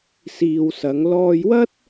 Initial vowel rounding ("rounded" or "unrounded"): unrounded